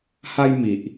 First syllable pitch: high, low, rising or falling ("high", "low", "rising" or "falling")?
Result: high